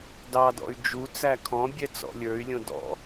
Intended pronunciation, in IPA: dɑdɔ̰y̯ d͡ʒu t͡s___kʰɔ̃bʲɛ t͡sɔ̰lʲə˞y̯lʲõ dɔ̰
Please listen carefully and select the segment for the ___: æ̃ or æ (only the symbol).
æ